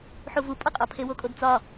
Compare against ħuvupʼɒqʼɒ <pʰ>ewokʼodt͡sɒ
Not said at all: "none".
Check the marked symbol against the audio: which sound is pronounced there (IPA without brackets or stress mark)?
pʰ